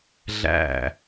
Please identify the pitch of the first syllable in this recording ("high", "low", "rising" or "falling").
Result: falling